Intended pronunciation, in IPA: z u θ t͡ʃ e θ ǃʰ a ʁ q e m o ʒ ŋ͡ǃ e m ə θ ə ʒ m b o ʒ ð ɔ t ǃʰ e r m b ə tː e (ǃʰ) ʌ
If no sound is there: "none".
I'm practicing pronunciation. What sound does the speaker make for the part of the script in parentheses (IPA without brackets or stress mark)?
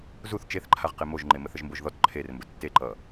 ǃ